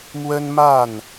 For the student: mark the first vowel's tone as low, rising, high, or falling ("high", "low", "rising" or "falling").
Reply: high